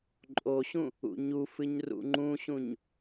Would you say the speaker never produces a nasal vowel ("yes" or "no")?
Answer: no